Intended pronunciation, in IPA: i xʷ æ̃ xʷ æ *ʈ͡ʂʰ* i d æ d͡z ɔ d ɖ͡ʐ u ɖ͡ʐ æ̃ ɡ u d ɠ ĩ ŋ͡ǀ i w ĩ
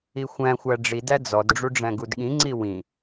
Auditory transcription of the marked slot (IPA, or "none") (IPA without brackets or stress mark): ɖ͡ʐ